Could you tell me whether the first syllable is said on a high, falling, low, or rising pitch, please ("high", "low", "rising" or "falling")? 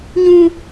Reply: high